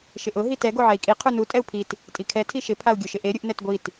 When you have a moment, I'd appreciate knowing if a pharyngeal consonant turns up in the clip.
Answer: yes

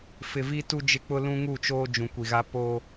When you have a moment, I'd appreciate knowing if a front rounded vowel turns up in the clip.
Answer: no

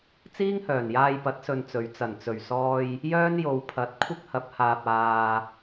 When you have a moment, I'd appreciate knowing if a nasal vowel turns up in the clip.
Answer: no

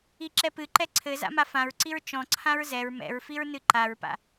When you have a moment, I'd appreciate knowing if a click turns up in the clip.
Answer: yes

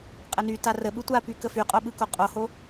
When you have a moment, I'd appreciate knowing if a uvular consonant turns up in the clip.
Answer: yes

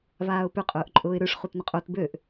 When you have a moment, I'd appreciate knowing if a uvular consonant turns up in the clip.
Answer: yes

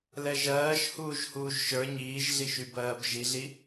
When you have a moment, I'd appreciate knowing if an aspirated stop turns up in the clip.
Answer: no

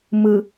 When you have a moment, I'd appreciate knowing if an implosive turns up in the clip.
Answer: no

